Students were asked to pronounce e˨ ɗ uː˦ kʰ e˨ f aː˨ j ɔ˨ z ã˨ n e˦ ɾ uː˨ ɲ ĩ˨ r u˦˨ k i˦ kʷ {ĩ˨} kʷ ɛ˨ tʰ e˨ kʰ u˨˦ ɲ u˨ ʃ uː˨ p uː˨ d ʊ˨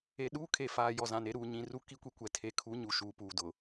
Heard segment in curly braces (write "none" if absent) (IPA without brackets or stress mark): i˨